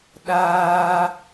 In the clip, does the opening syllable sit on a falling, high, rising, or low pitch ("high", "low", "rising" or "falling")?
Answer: high